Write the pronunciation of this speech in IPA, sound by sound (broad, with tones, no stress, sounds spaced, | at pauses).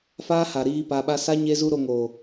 f aː˦ h a˨ ɾ iː˧ p a˧ ɓ a˦ s a˦ ɲ e˦ z u˦ ɾ o˧ ŋ o˨